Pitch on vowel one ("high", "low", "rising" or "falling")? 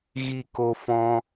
falling